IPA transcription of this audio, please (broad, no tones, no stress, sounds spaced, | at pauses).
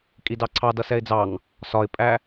kʼ i d ɑ ǀʰ ɑ d ʌ s ɛ ɪ̯ d͡z ɑ ŋ | s ɒ ɪ̯ pʼ æ